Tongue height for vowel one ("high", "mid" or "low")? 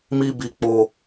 high